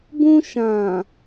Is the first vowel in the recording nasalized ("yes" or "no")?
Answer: yes